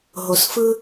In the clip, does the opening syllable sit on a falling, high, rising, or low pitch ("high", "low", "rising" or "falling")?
low